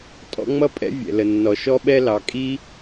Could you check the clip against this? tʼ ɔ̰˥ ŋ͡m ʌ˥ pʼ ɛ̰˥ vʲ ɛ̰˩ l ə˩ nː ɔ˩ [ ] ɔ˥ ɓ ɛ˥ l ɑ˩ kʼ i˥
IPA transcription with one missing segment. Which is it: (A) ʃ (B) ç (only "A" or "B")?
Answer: A